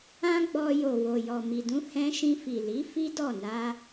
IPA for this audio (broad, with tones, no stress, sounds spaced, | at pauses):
ã˦ ɡ͡b ɔ˧ j o˨ w o˨ j ɔ˨ m i˨ d ũ˧ h ɛ̃˧ ʃ ĩ˧ f i˨ l i˨˦ f i˦ d ɔ˦˨ n a˧